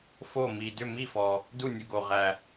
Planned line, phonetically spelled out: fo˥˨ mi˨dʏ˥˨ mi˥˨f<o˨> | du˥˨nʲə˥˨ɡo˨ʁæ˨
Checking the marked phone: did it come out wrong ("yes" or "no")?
yes